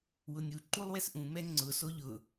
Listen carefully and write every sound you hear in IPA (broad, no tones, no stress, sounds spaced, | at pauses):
w ʊ nʲ u ǃ u lˠ w ɛ s ʔ ũ m ɛ ŋ͡ǀ ʊ s o ʎ ʊ